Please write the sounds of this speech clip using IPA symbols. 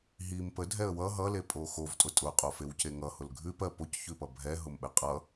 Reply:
ɦ i m p ə dʱ ɛ ə̯ w ʌ ɦ ʌ l e pʼ o x o v tʼ ʊ tʼ ʊ qʼ o f e w c e ŋ ʌ h ʊ l ɡʱ ʉ p ɜ p o c ç ʉ p ʌ bʱ ɛ ɦ ʊ m ɓ ɛ qʼ ʌ

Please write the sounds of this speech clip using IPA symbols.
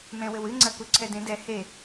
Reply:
m ɛ̃ w ɘ w ɨ ŋ͡ǀ ɐ k u ǀʰ ɛ d ẽ d ɛ h e

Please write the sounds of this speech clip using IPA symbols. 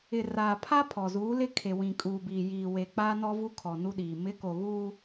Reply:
ɪ˨ r aː˨ pʰ a˦ pʰ ɔ˨ z uː˨˦ l ɪ˦ kʰ e˨ w ĩ˨ kʼ uː˨ b iː˨ j iː˨ w e˨ k͡p aː˦ n ɔ˦ v u˦ kʰ ɔ˨ n u˦ ɗ iː˨ m ɪ˨˦ k o˨ ɣ uː˦

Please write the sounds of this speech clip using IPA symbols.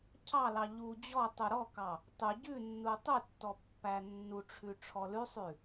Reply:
cʰ ɑ l ɑ ʎ u d͡ʑ ɔ tˤ u ɾ ɔ k ɑ | tˤ ʉ ɟ ʉ nː u tˤ ʉ tː ɔ pː æ nː u ʈ͡ʂʰ ʉ ʈ͡ʂʰ ɔ l ʉ sˤ ʉ

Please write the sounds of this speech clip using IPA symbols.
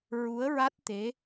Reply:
ɹ u˧˥ ə̯ ɹ a˦˥ t̚ t̪ e˧˥

